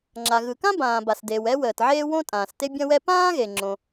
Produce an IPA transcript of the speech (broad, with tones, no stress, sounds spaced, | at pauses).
ŋ͡ǁ a˩ ɣ ɯ˩ k ã˥ b ãː˩ b a˩ s d eː˩ w ɛ˥ w əː˩ t ʕ eː˥ w õ˥ tʼ ãː˩ s t e˥ bʲ ɐ̃˥ w ɛ˥ p ãː˥ ɣ e˩ ŋ͡ǁ õ˩